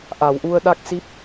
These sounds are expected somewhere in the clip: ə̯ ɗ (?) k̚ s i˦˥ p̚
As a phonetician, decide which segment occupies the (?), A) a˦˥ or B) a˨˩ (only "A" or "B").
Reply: A